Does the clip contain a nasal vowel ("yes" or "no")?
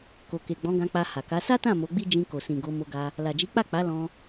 yes